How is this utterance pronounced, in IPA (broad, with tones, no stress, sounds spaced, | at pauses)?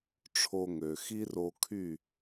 ʈ͡ʂʰ o˧ ŋ ø˩ x i˥ r o˧ kʰ y˥˩